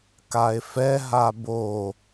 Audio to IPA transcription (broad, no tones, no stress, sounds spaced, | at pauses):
k a e̯ f ɛ ɦ a b o